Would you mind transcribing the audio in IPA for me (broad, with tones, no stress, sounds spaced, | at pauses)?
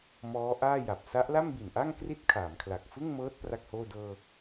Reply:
m ɔː˦˥ ʔ aː˥˩ j a˨˩ p̚ s a˦˥ ʔ l a˥˩ m b i˨˩ n ʔ a˥˩ ŋ k r i˥˩ t̚ kʰ aː˩˦ m kʰ l a˨˩ k̚ f ɯ˥˩ ŋ m ɤː˦˥ t̚ p r a˥˩ k̚ h oː˥˩ d ɤː˧